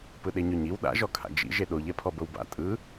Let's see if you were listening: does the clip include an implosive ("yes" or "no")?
yes